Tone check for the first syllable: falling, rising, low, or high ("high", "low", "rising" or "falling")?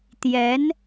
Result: rising